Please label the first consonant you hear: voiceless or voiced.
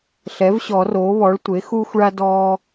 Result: voiceless